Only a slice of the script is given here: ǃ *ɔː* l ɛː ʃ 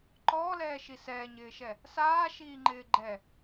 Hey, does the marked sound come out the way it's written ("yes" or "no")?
yes